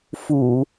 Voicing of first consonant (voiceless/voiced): voiceless